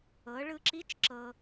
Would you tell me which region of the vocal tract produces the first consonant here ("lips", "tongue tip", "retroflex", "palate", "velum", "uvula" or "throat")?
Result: retroflex